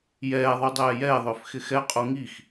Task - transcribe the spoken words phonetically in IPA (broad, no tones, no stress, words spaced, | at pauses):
jɛːðˤu dˤɛːjɛːðˤʏːf xɪxɛqʼu ŋix